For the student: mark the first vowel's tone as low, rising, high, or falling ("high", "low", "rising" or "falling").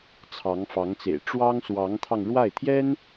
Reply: rising